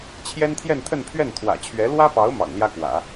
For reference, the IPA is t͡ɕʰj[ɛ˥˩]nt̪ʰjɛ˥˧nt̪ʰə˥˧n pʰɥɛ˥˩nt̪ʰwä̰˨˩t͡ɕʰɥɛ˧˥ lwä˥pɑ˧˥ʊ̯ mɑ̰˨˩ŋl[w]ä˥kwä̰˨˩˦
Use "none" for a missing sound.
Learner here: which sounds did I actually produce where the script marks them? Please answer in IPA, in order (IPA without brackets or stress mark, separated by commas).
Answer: ɛ˥, j